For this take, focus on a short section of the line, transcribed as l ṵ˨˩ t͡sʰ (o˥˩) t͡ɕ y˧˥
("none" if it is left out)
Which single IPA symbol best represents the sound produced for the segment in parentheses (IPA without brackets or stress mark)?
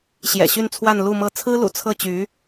ɤ˥˩